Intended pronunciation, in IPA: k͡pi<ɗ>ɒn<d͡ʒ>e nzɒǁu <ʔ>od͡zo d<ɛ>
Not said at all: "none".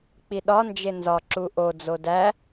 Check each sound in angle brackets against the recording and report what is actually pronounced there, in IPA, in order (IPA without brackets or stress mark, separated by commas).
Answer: ɗ, d͡ʒ, ʔ, æ